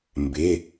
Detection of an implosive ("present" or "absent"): absent